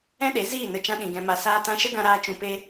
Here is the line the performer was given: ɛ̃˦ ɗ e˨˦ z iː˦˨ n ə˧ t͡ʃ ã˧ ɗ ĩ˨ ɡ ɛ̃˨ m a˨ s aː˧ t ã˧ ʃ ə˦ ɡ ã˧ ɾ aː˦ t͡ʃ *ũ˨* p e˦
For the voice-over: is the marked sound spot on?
no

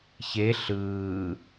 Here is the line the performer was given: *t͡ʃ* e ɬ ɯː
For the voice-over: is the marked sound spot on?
no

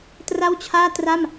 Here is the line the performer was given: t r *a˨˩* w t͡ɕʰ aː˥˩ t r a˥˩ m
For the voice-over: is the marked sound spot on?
no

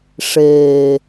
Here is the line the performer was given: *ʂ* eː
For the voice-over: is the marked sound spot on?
yes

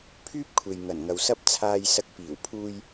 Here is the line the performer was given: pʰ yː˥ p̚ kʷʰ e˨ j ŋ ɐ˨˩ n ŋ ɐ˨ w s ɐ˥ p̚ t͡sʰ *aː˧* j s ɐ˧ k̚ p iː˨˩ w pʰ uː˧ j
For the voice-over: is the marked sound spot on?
yes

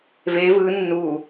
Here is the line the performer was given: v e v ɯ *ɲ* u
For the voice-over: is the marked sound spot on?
no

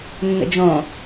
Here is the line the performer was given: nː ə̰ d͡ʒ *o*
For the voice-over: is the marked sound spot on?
no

